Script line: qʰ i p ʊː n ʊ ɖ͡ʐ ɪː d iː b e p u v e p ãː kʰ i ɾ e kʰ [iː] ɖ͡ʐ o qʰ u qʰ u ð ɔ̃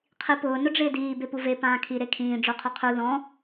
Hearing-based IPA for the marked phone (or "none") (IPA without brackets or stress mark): ĩː